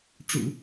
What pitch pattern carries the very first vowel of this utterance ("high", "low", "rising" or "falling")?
low